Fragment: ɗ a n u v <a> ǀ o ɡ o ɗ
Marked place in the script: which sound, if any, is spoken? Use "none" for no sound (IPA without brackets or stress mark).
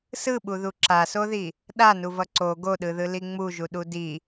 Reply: ʌ